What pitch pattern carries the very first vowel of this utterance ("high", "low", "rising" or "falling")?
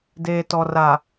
low